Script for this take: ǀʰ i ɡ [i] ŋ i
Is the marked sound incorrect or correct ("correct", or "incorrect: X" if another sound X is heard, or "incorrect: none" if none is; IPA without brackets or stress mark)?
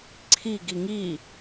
correct